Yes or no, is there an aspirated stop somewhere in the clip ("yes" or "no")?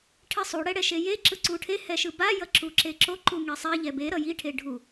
yes